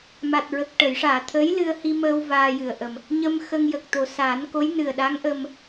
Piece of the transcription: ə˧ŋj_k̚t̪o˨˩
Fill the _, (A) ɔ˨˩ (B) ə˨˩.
B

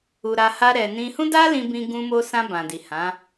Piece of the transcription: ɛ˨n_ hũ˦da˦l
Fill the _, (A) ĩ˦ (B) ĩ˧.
B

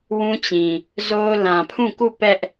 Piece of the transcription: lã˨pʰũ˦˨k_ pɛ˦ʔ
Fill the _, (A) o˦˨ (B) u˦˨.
B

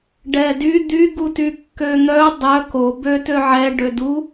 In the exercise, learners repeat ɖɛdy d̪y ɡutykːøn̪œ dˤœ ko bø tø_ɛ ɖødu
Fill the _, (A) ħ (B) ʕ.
B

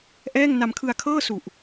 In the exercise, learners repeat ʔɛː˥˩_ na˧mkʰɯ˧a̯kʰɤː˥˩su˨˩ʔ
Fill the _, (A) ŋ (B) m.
A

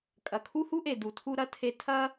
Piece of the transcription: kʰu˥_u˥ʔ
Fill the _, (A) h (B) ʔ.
A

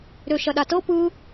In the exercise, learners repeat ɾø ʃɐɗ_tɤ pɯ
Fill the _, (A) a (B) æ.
A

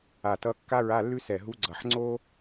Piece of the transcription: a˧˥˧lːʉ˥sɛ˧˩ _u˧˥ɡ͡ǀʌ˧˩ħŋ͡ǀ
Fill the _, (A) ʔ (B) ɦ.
B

